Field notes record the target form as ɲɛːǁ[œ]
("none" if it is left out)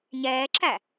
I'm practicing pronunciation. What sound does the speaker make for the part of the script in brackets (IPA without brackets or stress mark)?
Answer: æ